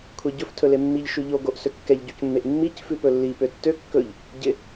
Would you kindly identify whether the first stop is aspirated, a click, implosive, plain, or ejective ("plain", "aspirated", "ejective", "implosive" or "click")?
aspirated